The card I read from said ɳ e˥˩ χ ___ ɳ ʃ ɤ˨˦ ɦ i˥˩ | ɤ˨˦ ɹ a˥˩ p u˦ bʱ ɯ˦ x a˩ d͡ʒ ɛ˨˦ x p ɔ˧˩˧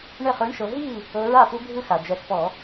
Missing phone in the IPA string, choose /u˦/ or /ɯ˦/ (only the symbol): ɯ˦